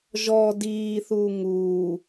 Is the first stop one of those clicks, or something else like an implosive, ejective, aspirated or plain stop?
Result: plain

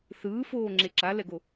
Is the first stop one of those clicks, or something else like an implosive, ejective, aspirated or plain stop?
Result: click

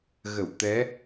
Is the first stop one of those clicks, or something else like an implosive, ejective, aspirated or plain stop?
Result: plain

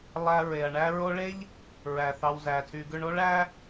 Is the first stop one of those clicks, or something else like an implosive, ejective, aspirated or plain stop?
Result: aspirated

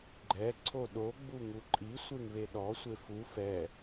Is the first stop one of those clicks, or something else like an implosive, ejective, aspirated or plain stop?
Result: click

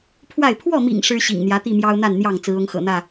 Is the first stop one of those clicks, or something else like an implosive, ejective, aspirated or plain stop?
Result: aspirated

